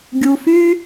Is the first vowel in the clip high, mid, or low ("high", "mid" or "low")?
high